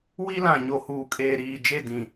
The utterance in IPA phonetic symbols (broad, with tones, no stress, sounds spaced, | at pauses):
w i˦ l ã˨ ɲ o˨ h uː˨ kʼ eː˨ ɾ iː˨ d͡ʒ e˦˨ d ĩ˨